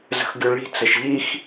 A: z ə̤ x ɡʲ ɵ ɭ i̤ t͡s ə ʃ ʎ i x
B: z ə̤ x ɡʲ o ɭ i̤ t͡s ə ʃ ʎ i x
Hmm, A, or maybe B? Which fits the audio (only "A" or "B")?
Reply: A